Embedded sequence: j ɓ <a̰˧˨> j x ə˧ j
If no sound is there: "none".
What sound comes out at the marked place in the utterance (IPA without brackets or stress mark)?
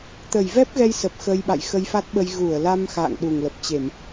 a̰˧˨